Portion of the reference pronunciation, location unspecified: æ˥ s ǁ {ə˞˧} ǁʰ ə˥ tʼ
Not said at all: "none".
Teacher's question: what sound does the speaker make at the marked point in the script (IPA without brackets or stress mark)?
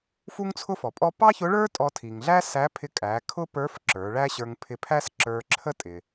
ə˞˧